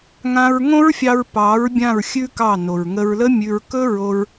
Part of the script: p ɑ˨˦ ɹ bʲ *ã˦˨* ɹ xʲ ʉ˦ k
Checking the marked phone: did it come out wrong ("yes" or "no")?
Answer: no